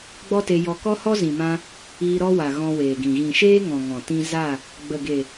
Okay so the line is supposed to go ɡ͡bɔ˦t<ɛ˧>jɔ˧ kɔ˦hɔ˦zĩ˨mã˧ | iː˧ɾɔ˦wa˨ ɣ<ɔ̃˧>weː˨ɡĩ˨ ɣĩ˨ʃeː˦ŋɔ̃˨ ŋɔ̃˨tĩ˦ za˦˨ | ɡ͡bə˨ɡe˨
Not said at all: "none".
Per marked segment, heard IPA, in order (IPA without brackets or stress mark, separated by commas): e˧, ɔ̃˧